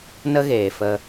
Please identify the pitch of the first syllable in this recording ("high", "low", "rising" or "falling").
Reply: high